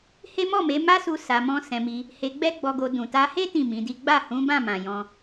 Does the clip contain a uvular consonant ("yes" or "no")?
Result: no